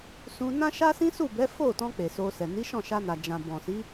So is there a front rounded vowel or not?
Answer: no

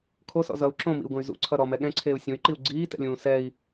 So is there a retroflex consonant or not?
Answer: no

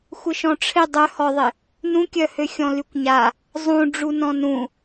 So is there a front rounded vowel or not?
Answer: yes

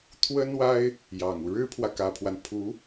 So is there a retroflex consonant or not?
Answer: yes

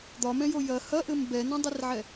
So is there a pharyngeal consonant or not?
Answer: yes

